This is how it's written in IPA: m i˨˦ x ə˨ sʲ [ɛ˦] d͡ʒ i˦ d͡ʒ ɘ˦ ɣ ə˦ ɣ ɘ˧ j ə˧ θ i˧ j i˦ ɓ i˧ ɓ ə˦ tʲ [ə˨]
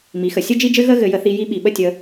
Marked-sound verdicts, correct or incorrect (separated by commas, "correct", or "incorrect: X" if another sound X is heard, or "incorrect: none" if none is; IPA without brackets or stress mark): incorrect: ɘ˦, incorrect: ə˧